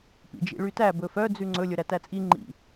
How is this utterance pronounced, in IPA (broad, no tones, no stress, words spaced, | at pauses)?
pḭd͡ʒḭɭytæ bɵfœ d͡zʉŋ͡ǀɵ lʲɵɾætæt͡sʼi ŋ͡ǃḭ